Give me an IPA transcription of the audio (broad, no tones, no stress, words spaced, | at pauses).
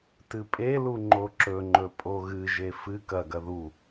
tɨpʼelu ŋ͡ǃoǁɵŋ͡ǃɵ pʼoɣɨʒe fɨ kɐɡɐ ðu